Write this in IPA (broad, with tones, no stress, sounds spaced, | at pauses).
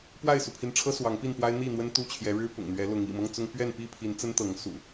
p w a˥˨ ɪ̯ s u˩ pʰ i˨˦ n ʈ͡ʂʰ ɤ˦ s w ɑ˨˦ ŋ p i˥˨ n p w a˦ ɪ̯ n̪ i˥˨ n̪ w ə˦ n t̪ u˥˨ t͡ɕʰ j ɛ˨˦ ɻ ɻ̩˦ p ʊ̰˨˩ ŋ n̪ ɥ ɛ˨˦ l ʊ˨˦ ŋ ḭ˨˩ m ɤ˦ ŋ t͡s ʊ˦ ŋ p ɥ ɛ˥˨ n p i˥˨ pʰ i˨˦ n t͡s ə˦ n t̪ ɤ˨˦ ŋ s ṵ˨˩